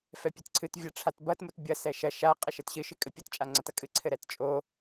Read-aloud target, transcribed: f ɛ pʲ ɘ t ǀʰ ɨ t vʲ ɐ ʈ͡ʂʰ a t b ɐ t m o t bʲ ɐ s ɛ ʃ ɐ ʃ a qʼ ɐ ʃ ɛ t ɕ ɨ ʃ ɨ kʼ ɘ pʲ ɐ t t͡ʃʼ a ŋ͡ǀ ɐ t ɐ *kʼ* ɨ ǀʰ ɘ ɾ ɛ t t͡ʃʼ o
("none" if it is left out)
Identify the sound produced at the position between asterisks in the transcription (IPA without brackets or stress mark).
kʼ